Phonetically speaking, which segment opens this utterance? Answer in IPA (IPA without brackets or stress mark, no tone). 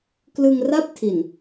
k